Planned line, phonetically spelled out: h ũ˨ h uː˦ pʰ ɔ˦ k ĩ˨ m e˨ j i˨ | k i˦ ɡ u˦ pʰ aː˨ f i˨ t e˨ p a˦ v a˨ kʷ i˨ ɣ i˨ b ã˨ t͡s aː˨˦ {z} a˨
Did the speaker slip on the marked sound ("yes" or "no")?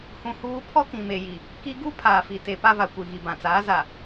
no